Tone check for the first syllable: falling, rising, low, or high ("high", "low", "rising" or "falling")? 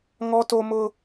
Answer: high